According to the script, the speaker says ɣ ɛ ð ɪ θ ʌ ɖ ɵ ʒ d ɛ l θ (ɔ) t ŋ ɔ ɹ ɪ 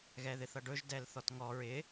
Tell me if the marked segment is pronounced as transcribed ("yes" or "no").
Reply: yes